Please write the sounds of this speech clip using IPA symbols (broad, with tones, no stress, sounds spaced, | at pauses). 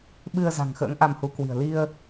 ɓ ɨ˧ ə̯ z a̤˨˩ ŋ x ə̰ː˧˥ ŋ ʔ a˧ m h u˨˦ k w i̤˨˩ ə̯ l i˧ ə̯